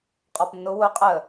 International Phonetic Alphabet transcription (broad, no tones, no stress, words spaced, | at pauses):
qʼɔpnːʊ wʊ qʼə